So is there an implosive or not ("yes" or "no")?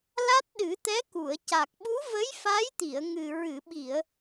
yes